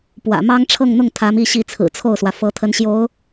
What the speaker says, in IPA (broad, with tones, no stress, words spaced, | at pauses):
pwä̰˨˩ mɑ˥ŋ ʈ͡ʂʰɤ˥˧ŋn̪ʊ˥˩ŋ t̪ʰä˧˥mi˥˧ɕi˥˩ t͡sʰɹ̩˨˩t͡sʰo˥˩ʊ̯swä˩ fɤ˧˥t̪ʰə˧˥nɕjo˧˥ʊ̯